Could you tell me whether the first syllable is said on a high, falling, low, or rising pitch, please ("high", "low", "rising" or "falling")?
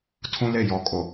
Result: high